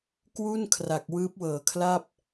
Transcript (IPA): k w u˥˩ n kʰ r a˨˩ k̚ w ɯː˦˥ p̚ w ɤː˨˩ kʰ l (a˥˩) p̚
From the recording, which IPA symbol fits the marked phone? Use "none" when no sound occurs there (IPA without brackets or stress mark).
a˥˩